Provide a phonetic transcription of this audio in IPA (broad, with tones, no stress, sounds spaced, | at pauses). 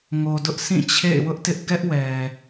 ŋ o˨ d ʊ˦ ʔ sʰ ĩ˦˨ t͡ɕʰ ḛ˦˨ ɪ̯ w ʊ˦ ʔ t ɪ˦ ʔ ɡ ɛ˦ ʔ w ɛ˨